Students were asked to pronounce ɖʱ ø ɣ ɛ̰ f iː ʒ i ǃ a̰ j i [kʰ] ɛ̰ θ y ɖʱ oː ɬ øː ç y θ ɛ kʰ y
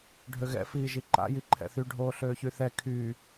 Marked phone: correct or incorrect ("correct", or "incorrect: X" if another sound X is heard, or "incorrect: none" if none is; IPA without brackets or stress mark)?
incorrect: ǃʰ